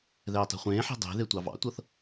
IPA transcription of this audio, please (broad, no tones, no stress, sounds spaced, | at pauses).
ð ɛː tˤ ɛ̤ χʷ ẽː ħ e̤ dˤ e̤ ð e tʷ ɑ v ɑ̰ tʷ ɤ θ